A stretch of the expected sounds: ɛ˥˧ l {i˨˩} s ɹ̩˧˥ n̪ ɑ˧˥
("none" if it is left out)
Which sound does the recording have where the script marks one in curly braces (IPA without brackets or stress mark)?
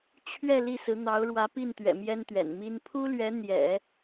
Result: i˥˩